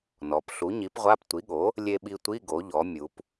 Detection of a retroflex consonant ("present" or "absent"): absent